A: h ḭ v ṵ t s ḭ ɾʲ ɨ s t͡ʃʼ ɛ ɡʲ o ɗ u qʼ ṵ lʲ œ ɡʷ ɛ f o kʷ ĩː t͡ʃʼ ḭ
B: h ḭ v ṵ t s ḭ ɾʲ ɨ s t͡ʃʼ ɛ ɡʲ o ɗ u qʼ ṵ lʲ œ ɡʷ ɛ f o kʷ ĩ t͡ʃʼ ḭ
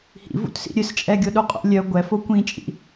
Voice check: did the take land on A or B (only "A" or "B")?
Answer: B